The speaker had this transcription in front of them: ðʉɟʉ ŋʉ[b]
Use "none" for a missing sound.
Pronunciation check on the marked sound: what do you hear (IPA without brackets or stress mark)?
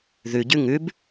b